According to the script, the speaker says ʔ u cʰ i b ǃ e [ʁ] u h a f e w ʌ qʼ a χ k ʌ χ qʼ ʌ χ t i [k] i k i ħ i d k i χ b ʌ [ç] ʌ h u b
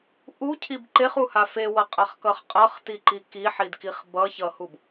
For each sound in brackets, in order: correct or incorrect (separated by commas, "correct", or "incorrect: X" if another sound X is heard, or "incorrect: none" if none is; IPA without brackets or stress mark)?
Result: incorrect: χ, incorrect: ǃ, correct